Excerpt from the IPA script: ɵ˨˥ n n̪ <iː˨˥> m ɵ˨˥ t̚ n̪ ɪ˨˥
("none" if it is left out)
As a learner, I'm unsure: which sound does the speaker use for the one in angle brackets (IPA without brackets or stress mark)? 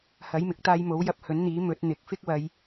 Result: iː˨˥